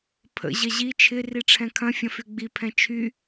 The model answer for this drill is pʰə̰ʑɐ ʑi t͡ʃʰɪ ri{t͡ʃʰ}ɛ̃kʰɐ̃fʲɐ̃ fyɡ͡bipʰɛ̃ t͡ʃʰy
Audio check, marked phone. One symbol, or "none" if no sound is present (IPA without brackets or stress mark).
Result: ʈ͡ʂʰ